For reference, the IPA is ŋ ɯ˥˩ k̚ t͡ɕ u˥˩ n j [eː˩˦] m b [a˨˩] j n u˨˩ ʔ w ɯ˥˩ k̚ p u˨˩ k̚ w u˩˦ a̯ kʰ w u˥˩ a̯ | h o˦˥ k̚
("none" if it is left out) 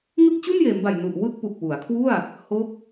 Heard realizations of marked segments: eː˩˦, a˨˩

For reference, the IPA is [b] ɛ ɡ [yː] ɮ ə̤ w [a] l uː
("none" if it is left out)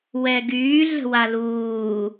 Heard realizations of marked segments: w, yː, a

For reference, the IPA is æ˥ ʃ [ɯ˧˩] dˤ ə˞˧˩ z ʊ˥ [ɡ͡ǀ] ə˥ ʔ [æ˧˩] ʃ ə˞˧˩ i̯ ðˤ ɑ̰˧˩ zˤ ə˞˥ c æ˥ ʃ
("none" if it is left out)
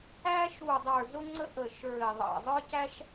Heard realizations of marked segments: u˧˩, ŋ͡ǀ, ə˧˩

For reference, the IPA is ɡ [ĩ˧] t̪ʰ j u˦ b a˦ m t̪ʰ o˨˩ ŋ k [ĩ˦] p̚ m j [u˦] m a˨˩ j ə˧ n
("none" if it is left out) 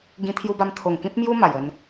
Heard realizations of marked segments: ĩ˧, ĩ˦, u˦

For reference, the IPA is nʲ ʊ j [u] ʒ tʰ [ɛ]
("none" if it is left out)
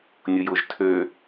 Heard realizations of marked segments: ʊ, ø

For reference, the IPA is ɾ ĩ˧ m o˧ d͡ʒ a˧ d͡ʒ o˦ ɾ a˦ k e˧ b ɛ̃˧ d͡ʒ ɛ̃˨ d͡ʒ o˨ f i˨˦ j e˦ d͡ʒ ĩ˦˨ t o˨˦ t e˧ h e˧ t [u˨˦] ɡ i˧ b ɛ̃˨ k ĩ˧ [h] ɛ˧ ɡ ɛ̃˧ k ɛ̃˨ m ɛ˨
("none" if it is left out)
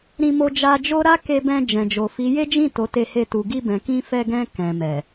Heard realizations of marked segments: u˨, f

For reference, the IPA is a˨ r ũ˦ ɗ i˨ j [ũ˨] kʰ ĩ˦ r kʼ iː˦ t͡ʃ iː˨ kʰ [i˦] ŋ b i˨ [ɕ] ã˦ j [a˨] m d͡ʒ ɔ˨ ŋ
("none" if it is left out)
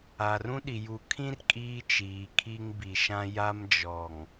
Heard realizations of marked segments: u˨, i˦, ʃ, a˦

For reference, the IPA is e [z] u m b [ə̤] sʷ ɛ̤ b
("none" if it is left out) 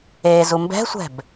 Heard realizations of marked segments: z, ɛ̤

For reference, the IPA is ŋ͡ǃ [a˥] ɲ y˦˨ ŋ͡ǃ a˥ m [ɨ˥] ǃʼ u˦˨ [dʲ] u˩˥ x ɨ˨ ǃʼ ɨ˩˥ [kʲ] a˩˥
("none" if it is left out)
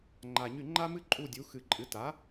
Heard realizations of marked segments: a˨, ɨ˥, dʲ, t

